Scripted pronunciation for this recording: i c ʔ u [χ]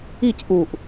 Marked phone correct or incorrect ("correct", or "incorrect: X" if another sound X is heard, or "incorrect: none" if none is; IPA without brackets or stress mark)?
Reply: incorrect: ʔ